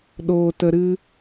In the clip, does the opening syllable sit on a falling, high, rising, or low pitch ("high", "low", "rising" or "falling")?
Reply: low